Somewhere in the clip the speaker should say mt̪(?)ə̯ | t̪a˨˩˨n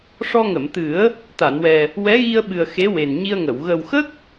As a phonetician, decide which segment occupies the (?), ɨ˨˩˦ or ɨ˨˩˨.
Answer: ɨ˨˩˦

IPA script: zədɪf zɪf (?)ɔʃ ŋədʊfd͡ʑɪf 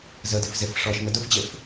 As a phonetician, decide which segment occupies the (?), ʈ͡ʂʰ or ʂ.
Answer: ʂ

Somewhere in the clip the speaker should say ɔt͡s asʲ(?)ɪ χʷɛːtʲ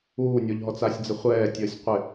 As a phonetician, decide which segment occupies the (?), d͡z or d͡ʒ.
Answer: d͡z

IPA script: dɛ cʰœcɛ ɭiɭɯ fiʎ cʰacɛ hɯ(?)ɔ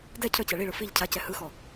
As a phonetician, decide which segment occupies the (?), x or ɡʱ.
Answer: x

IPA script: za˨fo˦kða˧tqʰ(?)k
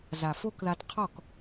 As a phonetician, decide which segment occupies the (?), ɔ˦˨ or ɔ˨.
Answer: ɔ˦˨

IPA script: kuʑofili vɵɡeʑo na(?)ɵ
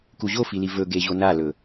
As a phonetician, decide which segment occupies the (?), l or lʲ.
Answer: l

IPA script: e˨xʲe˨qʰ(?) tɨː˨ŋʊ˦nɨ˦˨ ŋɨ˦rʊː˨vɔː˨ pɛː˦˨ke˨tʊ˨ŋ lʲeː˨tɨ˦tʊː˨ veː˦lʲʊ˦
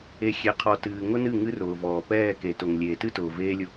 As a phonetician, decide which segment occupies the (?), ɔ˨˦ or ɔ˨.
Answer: ɔ˨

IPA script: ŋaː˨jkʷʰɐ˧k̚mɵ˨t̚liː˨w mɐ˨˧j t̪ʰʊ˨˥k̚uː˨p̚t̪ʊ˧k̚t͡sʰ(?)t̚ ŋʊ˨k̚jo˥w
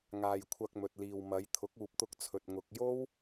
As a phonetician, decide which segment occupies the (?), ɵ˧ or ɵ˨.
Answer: ɵ˨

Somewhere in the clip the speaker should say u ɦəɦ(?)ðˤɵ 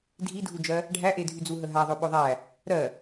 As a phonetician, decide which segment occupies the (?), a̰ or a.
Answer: a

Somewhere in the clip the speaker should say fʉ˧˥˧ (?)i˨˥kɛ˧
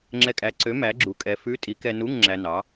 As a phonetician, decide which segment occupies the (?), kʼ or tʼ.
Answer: tʼ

